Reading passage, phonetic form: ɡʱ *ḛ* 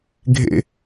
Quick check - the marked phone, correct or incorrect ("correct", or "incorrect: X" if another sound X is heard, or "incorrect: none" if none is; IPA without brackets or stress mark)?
correct